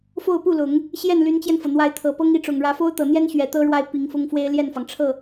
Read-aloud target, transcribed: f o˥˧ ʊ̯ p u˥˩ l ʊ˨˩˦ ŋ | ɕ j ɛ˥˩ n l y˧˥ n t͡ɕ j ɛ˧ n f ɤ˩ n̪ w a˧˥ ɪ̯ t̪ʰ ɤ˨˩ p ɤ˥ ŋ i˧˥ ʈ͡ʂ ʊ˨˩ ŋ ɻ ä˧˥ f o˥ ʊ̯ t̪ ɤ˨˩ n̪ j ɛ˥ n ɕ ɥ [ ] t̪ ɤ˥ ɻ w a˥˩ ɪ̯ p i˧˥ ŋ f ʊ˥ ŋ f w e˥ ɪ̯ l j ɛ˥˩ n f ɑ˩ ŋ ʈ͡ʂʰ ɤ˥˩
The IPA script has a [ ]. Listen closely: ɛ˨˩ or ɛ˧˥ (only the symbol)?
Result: ɛ˨˩